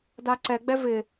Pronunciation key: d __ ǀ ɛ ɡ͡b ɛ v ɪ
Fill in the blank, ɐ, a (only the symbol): a